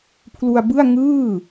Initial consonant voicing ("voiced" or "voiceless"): voiceless